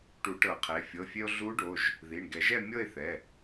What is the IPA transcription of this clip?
ʈ u˨˩˦ ʈ ɤ˨˩˦ qʰ e˩˧˩ fʲ ɤ˩˧˩ fʲ e˧ o̯ ɮ u˧˥ ɖ o˩˧˩ ʒ | ð i˩˧˩ ɳ ɡ ɛ˨˩˦ ʒ ɛ˥˨ mʲ ɤ˥˨ e̯ θ ɛ˩˧˩

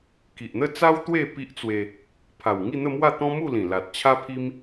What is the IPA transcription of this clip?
k i˨ ʔ n̪ ə˥˧ t͡s a˦ w t̪ w e˥˧ p i˦ ʔ t͡s w e˧ | pʰ a˨˩ w ŋ i˥˧ n̪ ə˥˧ m w a˥˧ t̪ ɔ̃˦ m u˥˧ l ĩ˨˩ l a˨ t̚ t͡ɕʰ a˦ pʰ i˦ m

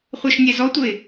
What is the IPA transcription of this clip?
χʷ ə˞ ʃ nʲ ɛ z ɔ tʷ ə ɪ̯

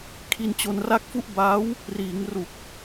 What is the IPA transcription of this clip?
kʰ i˧ n t͡ɕ o˧ n r a˥˩ k̚ f u˥˩ ʔ b aː˦˥ w | r iː˩˦ ŋ r u˨˩ k̚

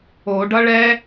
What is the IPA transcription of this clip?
o ɖ ʌ ɭ ɛ

